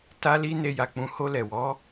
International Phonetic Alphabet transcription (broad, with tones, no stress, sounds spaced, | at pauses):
t a˦ l i˦ n e˧ j a˨ k͡p ũ˧ h o˧ l ɛ˨ w ɔ˨˦